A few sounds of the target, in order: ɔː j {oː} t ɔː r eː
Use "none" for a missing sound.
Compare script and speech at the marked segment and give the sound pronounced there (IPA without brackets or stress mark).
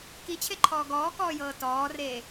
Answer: ɤː